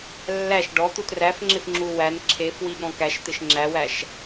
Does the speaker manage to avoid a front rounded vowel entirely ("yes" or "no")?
yes